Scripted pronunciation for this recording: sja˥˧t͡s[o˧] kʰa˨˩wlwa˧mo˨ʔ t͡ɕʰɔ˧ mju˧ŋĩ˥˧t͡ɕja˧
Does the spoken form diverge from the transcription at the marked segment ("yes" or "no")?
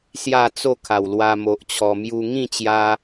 yes